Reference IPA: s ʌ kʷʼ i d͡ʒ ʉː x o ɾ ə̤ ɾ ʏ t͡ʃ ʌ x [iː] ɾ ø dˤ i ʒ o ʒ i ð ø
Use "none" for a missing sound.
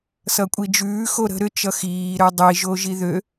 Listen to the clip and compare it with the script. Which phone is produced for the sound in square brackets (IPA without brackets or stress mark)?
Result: iː